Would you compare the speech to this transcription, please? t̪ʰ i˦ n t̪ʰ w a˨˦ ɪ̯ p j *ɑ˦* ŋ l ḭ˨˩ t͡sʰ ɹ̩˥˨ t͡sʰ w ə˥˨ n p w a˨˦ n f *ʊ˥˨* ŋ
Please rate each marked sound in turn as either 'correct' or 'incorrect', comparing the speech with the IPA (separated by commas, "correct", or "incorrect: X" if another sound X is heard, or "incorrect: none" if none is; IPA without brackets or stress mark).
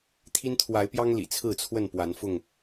correct, correct